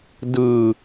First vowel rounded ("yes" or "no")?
no